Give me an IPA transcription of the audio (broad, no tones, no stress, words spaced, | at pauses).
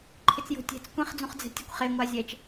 ǃʰɪt͡sjo̤tʲɛ̤t͡s kʷẽχd͡zũχd͡zɛ̤tʲɛkʷ χeŋʷa zʲɛt͡ʃ